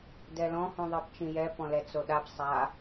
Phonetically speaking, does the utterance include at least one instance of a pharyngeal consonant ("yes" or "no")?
no